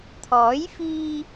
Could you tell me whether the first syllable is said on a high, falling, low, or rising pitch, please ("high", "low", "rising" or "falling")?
rising